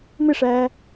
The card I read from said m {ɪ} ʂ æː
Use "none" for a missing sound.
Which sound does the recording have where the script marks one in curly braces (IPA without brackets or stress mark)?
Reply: ɪ